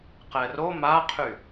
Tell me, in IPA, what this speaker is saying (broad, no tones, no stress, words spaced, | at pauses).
qɛro maqʰy